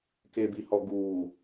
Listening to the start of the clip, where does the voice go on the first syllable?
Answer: low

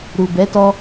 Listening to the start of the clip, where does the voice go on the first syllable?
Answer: low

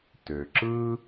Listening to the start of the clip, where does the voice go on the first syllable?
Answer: low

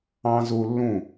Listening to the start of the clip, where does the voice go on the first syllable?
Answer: high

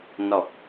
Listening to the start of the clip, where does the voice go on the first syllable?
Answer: low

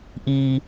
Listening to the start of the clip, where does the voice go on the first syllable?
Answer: high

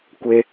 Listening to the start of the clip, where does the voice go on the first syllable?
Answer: low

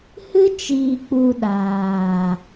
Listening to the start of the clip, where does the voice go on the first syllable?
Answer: high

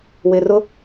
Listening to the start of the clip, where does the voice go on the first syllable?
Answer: low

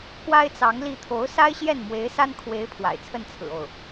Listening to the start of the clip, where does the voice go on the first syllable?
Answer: high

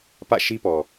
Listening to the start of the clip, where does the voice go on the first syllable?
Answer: falling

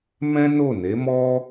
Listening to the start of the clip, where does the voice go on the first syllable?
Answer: high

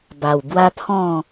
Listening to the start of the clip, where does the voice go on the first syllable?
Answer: low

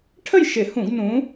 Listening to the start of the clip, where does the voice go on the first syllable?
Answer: falling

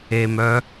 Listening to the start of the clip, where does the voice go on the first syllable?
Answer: low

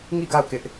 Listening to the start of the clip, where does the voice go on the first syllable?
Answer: falling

